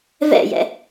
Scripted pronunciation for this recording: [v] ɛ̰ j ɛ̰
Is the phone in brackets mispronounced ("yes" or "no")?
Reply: no